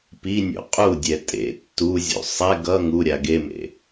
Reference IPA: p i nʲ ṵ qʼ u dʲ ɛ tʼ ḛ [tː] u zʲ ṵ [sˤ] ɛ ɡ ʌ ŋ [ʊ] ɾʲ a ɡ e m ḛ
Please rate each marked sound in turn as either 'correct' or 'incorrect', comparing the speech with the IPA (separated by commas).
correct, correct, incorrect